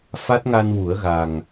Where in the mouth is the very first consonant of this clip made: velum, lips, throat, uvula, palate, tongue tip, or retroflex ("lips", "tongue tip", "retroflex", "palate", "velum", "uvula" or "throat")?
lips